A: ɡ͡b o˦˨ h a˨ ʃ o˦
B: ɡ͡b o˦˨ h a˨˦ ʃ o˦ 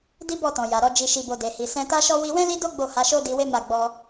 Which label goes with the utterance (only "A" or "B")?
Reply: B